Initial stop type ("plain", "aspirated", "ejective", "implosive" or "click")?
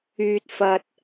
plain